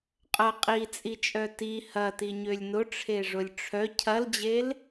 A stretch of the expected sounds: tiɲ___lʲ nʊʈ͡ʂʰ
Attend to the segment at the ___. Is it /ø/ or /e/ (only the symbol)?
ø